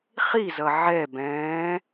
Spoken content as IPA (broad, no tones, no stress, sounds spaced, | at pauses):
χ i z ʌ ʕ ɛ b ɛ̃ː